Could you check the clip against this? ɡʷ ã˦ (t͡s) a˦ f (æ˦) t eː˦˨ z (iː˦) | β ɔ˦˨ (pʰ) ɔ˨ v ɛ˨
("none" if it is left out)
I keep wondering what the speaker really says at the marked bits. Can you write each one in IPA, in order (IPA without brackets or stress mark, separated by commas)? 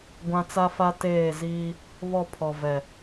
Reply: t͡s, a˦, iː˦, pʰ